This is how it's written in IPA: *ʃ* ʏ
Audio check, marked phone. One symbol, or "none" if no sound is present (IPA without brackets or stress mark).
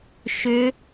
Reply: ʃ